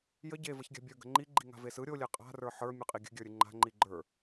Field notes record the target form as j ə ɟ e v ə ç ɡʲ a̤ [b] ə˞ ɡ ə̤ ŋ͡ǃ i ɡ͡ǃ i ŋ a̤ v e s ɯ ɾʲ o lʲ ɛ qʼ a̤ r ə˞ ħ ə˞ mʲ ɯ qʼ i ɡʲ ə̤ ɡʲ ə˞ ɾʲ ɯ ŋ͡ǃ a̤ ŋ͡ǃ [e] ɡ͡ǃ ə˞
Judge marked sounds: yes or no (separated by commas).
no, no